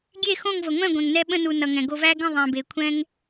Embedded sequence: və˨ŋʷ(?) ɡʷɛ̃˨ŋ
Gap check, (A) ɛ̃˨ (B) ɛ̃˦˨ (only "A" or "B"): B